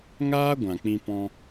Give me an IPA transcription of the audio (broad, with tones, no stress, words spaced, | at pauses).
ŋaː˦ ɡʷã˨k͡pĩ˧pɔ̃˧